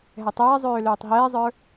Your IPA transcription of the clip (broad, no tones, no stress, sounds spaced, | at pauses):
ɦ ɛ tˤ ɛː zˤ øː l øː tˤ ɦ ɛː zˤ ə˞